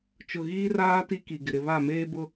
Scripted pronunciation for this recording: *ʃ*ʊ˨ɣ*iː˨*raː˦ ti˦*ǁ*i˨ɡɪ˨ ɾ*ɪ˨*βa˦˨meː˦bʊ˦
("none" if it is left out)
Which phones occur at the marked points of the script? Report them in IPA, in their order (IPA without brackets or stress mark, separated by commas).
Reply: t͡ʃ, iː˦, k, ɪ˨